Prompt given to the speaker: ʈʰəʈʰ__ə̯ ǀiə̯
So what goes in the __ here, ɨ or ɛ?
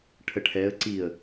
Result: ɛ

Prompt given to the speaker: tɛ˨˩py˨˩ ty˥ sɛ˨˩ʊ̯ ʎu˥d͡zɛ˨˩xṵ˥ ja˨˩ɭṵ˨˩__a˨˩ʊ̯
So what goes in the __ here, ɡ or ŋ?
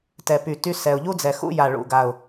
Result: ɡ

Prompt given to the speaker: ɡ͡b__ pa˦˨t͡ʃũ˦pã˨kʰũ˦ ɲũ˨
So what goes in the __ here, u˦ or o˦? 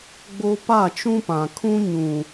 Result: o˦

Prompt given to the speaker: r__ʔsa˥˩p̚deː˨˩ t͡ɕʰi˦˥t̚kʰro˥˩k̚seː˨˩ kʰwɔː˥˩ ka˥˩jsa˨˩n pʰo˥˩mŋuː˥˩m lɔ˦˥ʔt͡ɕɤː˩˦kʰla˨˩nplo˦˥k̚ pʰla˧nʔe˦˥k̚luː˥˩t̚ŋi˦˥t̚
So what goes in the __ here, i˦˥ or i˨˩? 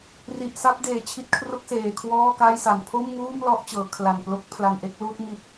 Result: i˨˩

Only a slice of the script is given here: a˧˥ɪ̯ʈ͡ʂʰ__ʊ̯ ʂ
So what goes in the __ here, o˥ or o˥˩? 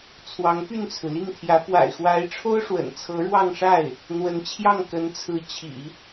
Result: o˥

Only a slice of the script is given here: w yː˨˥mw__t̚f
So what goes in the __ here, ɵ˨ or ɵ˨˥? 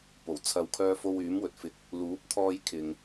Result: ɵ˨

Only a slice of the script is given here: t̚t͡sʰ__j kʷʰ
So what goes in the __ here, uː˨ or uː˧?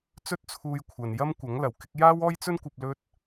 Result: uː˧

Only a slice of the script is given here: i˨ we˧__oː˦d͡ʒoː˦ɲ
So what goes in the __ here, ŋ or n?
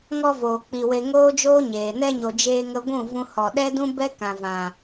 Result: ŋ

